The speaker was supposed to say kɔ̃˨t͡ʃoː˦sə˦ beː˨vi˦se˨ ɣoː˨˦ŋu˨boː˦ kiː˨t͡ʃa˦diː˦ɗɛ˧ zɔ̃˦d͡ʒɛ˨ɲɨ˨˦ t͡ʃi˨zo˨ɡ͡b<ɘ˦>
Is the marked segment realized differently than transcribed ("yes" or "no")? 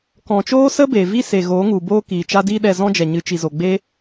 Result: yes